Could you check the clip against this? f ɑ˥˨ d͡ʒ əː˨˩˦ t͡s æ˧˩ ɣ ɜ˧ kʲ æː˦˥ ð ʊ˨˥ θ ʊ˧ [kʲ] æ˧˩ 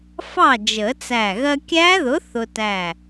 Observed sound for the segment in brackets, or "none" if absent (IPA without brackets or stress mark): t